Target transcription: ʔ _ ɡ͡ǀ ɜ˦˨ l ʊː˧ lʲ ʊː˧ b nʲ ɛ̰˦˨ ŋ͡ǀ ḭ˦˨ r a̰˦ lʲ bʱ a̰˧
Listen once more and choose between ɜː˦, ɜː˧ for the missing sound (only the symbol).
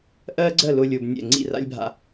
ɜː˦